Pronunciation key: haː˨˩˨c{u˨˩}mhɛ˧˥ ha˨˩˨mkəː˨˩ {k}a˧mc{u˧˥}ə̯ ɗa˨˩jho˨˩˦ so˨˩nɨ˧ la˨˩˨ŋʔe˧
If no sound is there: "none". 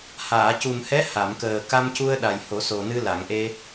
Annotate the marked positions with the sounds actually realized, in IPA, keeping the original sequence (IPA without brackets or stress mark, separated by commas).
u˨˩, k, u˧